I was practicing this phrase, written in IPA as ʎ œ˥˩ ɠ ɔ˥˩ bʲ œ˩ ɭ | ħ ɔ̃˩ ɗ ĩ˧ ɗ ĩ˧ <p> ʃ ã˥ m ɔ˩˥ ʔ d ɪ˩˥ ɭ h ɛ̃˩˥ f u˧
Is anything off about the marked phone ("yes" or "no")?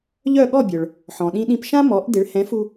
no